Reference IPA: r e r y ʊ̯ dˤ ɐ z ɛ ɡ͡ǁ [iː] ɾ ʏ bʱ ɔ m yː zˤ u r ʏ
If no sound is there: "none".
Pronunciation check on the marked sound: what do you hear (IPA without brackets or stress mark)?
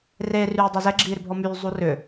iː